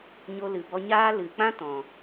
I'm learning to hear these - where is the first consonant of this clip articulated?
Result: palate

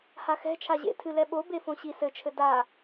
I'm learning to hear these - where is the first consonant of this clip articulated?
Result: throat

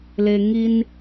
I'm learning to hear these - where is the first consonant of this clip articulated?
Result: tongue tip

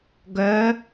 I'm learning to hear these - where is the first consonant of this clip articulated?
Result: velum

